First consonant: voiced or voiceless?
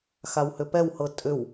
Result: voiceless